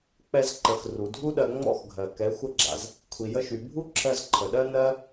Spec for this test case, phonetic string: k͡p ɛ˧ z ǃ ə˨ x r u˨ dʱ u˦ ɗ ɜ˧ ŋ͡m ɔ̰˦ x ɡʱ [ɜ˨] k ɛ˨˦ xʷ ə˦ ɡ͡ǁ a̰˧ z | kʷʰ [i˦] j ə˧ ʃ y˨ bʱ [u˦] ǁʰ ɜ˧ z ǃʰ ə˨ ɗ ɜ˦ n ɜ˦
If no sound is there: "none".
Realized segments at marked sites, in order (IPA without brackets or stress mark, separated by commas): ɜ˨, i˨, u˦